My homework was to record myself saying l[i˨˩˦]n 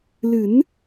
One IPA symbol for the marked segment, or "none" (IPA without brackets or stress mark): ɨ˨˩˦